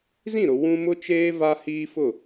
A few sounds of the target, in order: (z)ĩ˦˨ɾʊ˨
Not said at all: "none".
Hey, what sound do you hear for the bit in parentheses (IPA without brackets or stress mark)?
z